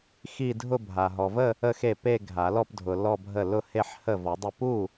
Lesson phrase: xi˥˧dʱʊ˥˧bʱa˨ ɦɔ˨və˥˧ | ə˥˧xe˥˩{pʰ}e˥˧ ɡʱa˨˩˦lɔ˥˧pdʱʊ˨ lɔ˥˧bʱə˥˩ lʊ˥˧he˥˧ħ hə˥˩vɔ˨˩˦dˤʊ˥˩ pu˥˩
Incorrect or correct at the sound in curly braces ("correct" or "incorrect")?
incorrect